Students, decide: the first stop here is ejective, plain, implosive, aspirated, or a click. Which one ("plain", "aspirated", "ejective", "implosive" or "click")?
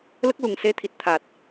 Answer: plain